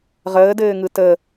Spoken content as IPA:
ʁ əː d ɘː ŋ ɯ t ə

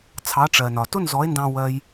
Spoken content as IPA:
t͡sʰ ɑ˨˦ ʈ͡ʂ ɜ˨ n ɒ˨ t ʊ˦ n z ɔ˨˦ e̯ n d ɑ̃˧ w ɜ˦ j

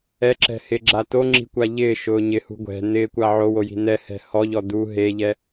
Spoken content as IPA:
ɛ ǁ ɛ̤ h ɪ ɡ͡ǁ a t o ŋ͡ǁ i̤ kʷ a ʎ ɪː ʃ ʊː ɲ ɪ h ṳ ɡʷ ɛ̤ n ɪː kʷ a ʕ o w o j i̤ n ɛ h ɛ̤ h ɔ ʎ ɔ d u ɦ e ʎ ɛ

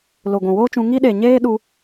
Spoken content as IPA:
l o˨ ɡʷ ũ˨ w oː˦ t͡ʃ ũ˧ ŋ i˧ ɗ e˨ ɲ eː˦ ɗ u˧

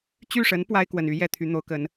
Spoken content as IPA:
t͡ɕ y˥˩ ʂ ə˧˥ n p w a˥ ɪ̯ k w ə˨˩ n y˧˥ j ɛ˥˩ t̪ʰ y˧˥ n̪ o˧˥ ʊ̯ k ə˧˥ n

